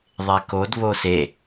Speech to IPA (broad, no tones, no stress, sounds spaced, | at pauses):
ðˤ e k o d β o s e